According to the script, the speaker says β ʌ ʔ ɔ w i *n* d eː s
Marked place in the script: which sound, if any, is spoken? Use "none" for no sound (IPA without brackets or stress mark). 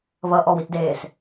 t